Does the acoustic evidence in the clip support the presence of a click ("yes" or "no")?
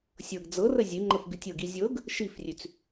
yes